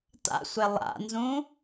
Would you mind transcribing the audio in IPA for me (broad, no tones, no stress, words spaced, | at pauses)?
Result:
ta̰sʷe lˠa̰nzũ